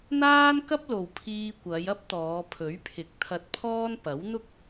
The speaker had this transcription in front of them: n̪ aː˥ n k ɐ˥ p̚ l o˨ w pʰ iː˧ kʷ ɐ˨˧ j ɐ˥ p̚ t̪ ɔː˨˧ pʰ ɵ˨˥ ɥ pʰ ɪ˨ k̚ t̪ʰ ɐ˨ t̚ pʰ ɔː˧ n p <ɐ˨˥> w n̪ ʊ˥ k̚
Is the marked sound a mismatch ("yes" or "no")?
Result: no